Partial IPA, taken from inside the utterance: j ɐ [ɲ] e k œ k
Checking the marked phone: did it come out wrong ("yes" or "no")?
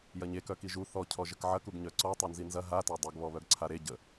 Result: no